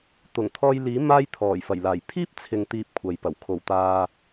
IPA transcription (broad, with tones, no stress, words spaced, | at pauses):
t̪ʊ˨˩ŋt̪ʰɔː˧jliː˨˥ maː˧j t̪ʰɔː˨˩jfɐ˨˩jlaː˨˩j pʰiː˥p̚t͡sʰɪ˨ŋ t̪iː˧p̚kʷʰɐ˨jpɐ˨˩w kʰo˨˩wt̪aː˨